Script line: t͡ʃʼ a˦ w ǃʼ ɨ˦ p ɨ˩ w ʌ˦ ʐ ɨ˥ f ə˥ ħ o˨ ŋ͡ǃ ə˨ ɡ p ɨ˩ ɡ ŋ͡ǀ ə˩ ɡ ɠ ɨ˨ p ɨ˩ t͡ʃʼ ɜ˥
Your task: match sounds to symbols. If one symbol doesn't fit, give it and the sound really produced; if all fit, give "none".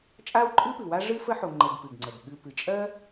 ʌ˦ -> a˦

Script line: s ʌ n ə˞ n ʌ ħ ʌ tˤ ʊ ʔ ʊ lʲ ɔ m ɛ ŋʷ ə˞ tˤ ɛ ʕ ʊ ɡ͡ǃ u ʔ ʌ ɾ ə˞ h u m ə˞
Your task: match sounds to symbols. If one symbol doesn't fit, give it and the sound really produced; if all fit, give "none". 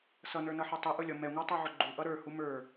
none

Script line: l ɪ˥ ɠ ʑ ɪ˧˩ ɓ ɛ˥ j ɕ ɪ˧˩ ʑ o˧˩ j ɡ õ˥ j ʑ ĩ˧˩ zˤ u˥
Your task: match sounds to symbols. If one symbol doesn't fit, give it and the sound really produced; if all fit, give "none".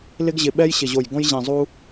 ɠ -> ɡ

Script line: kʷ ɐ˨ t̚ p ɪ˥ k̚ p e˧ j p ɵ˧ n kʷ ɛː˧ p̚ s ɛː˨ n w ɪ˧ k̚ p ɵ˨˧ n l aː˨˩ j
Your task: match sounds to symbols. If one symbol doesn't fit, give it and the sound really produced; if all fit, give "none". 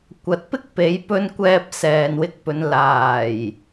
e˧ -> e˨˧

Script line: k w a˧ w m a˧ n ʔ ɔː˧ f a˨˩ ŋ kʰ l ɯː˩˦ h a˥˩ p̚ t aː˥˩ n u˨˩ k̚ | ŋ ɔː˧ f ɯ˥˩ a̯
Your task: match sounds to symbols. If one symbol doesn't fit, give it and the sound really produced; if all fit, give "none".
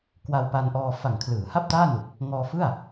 m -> p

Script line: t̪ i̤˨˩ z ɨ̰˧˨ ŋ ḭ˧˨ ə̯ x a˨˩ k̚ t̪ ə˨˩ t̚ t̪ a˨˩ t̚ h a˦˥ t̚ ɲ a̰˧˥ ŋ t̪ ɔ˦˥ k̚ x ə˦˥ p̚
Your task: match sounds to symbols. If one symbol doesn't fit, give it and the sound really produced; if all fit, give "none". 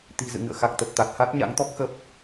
ḭ˧˨ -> ɨ̰˧˨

